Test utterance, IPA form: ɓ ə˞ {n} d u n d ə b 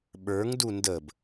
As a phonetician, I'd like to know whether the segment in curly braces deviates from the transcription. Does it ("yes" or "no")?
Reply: yes